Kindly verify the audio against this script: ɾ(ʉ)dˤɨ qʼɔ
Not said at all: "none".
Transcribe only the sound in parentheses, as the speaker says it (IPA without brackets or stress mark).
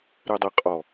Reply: ɨ